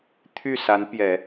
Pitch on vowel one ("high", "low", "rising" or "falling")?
falling